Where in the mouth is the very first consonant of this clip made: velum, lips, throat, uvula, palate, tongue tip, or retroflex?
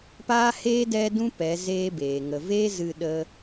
lips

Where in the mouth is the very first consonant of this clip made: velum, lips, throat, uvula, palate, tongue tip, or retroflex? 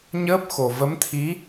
palate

